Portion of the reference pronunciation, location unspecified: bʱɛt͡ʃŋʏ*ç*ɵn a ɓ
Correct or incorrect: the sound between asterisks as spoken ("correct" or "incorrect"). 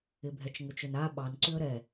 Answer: incorrect